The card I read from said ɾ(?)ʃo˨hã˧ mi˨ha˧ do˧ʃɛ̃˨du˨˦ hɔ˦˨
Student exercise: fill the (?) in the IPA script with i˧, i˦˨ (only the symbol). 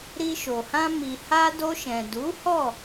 i˧